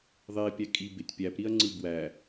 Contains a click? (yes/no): yes